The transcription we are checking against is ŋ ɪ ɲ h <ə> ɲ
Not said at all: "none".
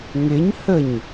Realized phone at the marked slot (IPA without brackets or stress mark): ə